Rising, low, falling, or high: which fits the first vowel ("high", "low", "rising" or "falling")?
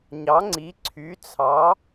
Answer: rising